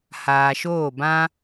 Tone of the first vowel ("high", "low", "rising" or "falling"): low